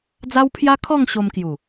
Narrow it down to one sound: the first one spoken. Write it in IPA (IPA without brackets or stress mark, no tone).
d͡z